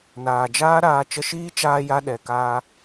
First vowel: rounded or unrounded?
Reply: unrounded